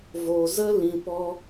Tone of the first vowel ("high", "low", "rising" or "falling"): low